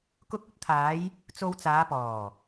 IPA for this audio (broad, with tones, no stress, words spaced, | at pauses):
kʊ˧k̚ɵ˥t̚t̪ʰaː˨˧j | t͡so˧wt͡saː˨˧ pɔː˨˩